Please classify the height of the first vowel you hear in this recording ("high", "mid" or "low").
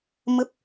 mid